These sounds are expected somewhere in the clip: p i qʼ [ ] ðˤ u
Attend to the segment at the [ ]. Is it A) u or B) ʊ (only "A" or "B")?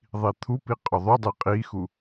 B